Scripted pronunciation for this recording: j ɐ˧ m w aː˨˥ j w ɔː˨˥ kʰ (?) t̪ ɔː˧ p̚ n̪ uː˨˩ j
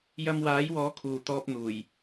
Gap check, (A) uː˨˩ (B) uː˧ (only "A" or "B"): A